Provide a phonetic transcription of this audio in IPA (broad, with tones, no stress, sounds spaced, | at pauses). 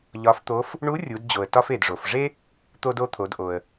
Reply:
ʎ ɒ˧˥ f t̪ o˧˥ f | ɳ u˧˥ rʲ u˩˧ d d͡ʑ o˩ ə̯ t ɒ˧ f e˩ d ʐ o˩ f ʐ e˥ | t̪ o˧ d o˧ t̪ʰ o˩˧ d ʔ o˩ ə̯